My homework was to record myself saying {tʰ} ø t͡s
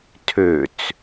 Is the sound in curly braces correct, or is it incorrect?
correct